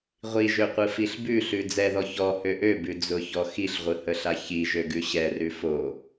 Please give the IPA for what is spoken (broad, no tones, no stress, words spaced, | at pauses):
ʁʷiʒøqʷɯ fiɬbʉɬʉ d͡zɛðɔ çɔhø ʔøbʉ d͡zʊçɔ xiɬʁʷɯhəɬa çiʒø ɡʉɕɛrʉ fo